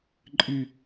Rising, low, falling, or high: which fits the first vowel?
falling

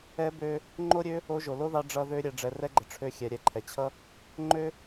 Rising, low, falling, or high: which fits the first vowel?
rising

